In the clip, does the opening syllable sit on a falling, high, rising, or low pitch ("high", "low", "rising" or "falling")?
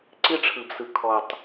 high